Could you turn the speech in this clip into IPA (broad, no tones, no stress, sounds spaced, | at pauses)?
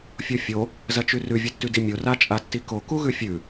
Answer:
fʲ o fʲ o | z ɐ t͡ʃ ʉ r ʉ vʲ ɨ tː ʉ d i mʲ o r a t͡ʃʼ a tː i k o k u ɣ ʉ fʲ ʉ